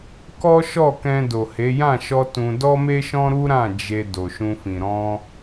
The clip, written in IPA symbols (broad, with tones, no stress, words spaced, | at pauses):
kɔ˦ʃɔ˦˨kɛ̃˧ do˨he˨˦ jã˦˨ʃɔ˧ tũ˧ dɔ˦me˦ʃɔ̃˦ɾu˦ ɾã˦˨ d͡ʒe˧ do˨ʃũ˧fĩ˨ ɾɔ̃˧